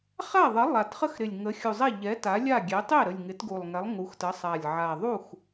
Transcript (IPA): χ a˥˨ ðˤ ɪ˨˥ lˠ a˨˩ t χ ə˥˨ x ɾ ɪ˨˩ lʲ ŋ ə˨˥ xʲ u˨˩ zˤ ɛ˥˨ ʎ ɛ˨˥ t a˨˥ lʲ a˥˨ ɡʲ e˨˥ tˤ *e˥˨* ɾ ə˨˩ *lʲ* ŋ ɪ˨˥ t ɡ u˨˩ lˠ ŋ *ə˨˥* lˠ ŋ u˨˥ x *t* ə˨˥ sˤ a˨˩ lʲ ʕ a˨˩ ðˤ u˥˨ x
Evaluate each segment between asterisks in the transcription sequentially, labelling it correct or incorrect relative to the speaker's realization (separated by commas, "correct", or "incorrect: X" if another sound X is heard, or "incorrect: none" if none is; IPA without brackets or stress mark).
correct, correct, incorrect: ɛ˨˥, correct